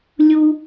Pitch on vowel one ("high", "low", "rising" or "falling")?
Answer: high